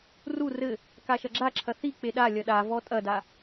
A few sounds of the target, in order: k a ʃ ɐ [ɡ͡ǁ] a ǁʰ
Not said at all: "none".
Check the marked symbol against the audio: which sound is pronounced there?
ɡ͡ǁ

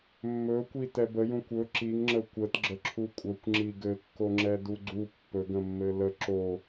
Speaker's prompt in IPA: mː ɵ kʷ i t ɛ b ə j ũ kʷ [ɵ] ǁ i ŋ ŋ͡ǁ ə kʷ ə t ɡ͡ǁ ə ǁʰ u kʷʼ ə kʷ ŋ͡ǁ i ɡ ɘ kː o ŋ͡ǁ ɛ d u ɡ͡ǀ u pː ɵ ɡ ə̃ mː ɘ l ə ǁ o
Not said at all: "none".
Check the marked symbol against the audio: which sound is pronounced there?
ɵ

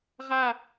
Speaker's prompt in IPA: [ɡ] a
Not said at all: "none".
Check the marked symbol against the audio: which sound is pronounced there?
ʁ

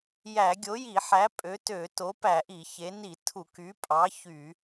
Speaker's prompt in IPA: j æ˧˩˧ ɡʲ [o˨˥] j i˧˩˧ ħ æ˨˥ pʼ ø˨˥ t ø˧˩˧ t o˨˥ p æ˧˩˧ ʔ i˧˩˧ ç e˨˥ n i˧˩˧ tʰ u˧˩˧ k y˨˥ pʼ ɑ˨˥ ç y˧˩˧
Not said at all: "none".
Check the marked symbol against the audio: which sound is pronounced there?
o˨˥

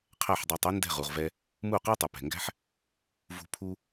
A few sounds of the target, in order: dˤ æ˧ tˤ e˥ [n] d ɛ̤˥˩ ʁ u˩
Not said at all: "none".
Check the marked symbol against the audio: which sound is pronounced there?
n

